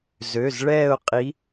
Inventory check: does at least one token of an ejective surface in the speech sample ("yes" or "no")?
yes